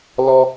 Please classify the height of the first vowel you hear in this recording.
mid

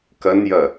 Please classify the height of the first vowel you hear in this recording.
low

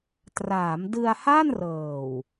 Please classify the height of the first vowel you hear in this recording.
low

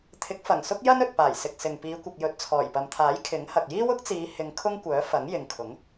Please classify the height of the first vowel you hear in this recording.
high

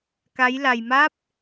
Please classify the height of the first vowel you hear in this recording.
low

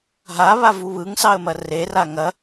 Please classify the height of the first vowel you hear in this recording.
low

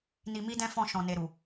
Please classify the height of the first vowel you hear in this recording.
high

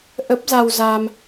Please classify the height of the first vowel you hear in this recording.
mid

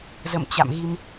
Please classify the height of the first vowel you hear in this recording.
mid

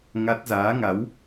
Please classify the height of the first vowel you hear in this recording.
low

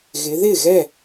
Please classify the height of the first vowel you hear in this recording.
high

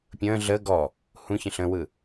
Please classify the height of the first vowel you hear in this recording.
mid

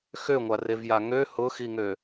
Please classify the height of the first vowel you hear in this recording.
mid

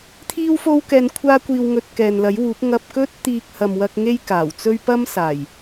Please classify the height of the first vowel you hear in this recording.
high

